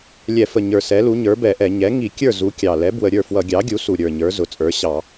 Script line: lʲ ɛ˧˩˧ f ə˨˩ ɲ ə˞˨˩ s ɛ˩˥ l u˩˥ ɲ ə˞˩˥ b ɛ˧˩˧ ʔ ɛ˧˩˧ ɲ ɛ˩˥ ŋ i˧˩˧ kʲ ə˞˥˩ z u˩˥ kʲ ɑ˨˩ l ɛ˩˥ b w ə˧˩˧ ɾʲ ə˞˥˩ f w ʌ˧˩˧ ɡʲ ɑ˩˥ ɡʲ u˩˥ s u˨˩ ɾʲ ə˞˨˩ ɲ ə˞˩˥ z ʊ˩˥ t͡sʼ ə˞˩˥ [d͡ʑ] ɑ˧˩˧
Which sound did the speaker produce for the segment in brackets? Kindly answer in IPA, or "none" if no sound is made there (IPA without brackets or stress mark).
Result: ɕ